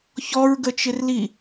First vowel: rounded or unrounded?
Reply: rounded